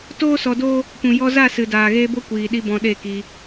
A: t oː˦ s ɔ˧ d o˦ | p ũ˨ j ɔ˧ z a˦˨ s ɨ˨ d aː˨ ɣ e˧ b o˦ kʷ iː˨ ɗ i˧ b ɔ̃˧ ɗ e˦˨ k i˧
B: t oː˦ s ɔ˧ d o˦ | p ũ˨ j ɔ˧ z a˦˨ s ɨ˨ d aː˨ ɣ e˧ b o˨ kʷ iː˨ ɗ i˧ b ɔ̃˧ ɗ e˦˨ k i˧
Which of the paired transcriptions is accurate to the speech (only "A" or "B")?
A